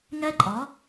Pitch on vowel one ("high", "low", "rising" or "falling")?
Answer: high